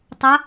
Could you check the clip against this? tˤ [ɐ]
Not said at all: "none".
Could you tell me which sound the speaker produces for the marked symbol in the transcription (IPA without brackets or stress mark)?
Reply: ɐ